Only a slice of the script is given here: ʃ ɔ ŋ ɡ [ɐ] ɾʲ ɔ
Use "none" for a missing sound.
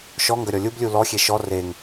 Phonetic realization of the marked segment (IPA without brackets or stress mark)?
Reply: ɐ